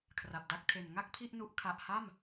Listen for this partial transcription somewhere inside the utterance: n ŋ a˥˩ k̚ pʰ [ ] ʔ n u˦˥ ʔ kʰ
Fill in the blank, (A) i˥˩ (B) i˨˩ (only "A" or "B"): A